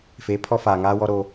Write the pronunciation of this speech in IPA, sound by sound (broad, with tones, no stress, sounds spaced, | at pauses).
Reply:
f eː˨˦ pʰ ɔ˦ f aː˨ ŋ aː˦ w ɔ˦ ɾ oː˦